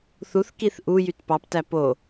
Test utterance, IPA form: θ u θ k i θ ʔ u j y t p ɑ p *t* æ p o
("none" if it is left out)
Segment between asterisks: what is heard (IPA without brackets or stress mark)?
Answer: t